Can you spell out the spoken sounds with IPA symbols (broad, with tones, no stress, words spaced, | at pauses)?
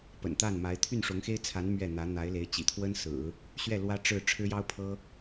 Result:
pə̰˨˩nt̪a˥˩nma˧˥ɪ̯ t̪ʰy˥˩nʂʊ˧˥ŋxe˥ɪ̯t͡sʰa˧˥n mɥɛ˥˩n̪ä˧˥ n̪a˧˥ɪ̯le˧˥ɪ̯ t͡ɕḭ˨˩t̪ʰwə˥nsɹ̩˨˩˦ | ɕɥɛ˥˩ lwä˥ʈ͡ʂɻ̩˥˩ ʈ͡ʂʰɻ̩˥jɑ˥ʊ̯pʰɤ˥